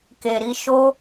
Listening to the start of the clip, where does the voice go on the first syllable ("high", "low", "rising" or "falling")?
low